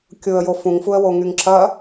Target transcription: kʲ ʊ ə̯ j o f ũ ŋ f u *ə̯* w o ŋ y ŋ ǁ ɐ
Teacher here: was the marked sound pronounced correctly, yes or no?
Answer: yes